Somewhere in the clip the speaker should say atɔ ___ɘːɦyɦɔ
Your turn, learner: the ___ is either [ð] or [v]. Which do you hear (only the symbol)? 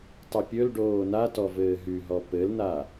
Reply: v